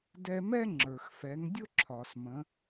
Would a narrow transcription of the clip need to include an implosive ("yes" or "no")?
no